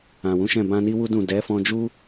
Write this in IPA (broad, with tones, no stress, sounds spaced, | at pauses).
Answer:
ã˨ w ũ˨˦ ʃ ɛ̃˦˨ b ã˧ n i˦ w u˦ d ũ˦˨ d ɛ˨˦ f ɔ̃˧ d͡ʒ u˦